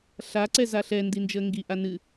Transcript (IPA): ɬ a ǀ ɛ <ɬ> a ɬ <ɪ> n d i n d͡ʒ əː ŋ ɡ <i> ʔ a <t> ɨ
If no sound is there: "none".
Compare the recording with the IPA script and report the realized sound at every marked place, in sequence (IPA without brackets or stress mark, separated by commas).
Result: z, ɛ, i, n